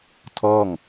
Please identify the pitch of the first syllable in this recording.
falling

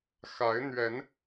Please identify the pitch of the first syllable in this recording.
rising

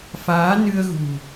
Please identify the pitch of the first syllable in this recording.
rising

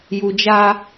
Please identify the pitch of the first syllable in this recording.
low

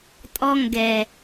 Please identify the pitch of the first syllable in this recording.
low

